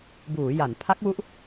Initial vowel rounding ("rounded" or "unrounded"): rounded